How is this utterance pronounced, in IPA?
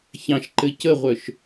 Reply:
ç ɑ̃ ʃ ǃ ɘ c ə ʁʷ œ ʃ

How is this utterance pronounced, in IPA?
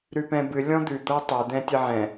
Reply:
ɾ ʉ p ɛ̃ b ɨ lʲ ɔ̃ d̪ ʉ d̪ ɤ tˤ ɛ d̪ ɛ̃ tʲ ə ʕ ɛ̃

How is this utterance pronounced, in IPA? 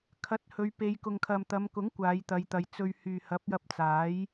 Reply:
kʰ ɐ˨˥ t̚ h ɵ˨˧ ɥ p e˨˧ j k ʊ˨ ŋ kʰ ɐ˨ m t̪ ɐ˨˧ m k ʊ˨˥ ŋ kʷ aː˨˧ j t̪ ɐ˨˧ j t̪ ɐ˨˧ j t͡s ɵ˧ ɥ h yː˨ h ɐ˨˥ p̚ j ɐ˧ p̚ t͡s aː˨˥ j

